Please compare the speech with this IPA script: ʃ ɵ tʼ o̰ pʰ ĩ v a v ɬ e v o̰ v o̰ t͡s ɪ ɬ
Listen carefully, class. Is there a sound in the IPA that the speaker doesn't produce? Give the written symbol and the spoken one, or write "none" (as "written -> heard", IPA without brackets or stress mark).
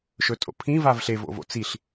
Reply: ɪ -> i